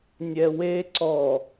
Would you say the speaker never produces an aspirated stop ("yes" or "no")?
yes